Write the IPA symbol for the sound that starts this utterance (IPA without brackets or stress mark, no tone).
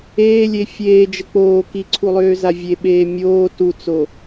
eː